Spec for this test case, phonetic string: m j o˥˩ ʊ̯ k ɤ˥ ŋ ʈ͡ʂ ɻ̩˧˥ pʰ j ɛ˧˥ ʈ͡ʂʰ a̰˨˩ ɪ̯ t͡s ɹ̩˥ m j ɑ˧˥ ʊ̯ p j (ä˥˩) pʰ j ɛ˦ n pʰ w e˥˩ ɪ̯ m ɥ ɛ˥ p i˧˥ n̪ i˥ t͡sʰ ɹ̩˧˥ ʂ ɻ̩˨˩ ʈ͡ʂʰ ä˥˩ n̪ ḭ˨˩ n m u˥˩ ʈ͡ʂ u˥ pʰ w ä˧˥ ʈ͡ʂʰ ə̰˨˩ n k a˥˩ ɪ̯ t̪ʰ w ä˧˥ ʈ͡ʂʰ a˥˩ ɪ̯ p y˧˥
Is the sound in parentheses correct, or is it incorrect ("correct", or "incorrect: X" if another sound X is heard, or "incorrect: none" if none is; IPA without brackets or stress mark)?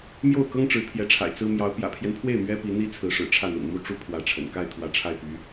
incorrect: ä̰˨˩